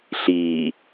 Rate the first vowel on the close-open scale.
close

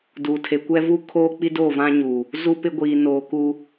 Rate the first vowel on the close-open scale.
close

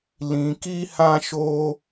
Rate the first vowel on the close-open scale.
close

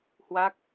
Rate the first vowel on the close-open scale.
open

